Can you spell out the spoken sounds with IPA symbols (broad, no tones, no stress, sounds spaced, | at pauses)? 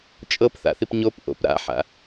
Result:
t͡ʃʼ ɤ p θ a̰ θ i p ɲ o p ʔ o̰ p ɾ a̰ ħ a̰